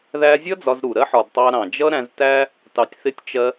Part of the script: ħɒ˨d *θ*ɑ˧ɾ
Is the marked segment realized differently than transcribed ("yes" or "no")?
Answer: yes